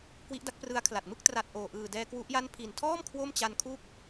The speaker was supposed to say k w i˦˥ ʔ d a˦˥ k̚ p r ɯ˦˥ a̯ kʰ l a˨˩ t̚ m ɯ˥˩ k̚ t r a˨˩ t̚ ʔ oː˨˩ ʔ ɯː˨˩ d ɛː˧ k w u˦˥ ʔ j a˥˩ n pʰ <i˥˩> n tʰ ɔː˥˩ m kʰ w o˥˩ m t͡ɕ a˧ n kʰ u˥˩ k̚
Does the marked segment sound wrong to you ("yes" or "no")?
yes